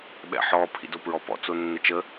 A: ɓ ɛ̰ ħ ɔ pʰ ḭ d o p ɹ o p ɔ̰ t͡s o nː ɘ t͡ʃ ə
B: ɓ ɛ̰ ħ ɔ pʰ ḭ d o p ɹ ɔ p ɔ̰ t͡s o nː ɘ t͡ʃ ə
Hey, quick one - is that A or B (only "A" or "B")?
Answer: B